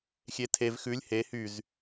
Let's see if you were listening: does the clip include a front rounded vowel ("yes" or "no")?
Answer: yes